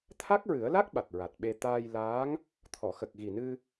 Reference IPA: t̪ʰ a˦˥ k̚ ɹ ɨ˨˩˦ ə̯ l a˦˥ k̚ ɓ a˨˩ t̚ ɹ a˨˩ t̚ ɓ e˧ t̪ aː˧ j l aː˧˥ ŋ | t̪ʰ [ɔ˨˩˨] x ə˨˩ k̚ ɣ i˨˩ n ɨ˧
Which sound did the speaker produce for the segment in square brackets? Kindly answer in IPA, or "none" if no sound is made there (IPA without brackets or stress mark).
ɔ˨˩˨